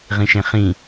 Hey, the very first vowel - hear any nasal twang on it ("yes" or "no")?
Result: yes